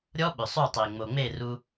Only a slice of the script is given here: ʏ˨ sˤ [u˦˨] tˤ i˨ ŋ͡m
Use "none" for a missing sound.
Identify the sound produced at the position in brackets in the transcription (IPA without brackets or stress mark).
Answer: u˦˨